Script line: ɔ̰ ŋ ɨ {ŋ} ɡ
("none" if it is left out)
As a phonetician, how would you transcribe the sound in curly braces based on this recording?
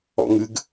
none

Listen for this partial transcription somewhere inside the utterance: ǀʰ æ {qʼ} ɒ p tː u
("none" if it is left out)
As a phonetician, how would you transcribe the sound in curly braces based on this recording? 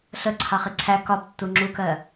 k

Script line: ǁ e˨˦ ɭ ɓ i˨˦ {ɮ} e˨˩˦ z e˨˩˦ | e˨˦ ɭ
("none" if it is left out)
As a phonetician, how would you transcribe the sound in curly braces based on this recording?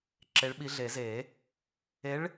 ɮ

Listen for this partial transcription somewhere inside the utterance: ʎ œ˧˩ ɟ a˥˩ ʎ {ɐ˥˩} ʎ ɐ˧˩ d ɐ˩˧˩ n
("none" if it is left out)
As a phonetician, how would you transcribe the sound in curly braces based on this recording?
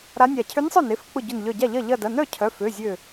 ɐ˥˩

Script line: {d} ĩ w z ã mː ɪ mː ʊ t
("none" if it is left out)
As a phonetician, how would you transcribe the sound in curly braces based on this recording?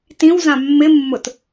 t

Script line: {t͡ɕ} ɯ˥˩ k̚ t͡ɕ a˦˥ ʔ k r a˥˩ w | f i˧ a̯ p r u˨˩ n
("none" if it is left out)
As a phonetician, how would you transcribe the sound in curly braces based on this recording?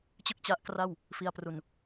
t͡ɕ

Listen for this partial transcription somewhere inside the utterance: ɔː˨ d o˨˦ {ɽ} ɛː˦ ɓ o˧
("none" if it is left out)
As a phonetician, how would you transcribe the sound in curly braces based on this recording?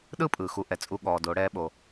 ɽ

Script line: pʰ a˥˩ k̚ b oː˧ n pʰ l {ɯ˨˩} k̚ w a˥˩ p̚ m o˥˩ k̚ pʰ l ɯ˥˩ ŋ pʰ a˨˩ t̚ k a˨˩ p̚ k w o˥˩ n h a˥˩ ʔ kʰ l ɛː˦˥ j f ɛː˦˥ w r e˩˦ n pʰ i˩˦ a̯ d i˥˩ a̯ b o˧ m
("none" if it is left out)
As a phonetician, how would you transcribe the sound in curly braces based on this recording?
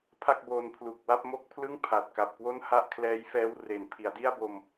u˨˩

